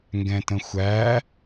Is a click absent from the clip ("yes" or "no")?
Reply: yes